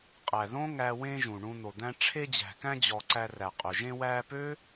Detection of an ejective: present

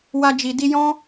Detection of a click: absent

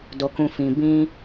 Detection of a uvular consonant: absent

